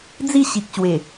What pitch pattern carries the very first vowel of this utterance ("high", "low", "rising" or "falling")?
falling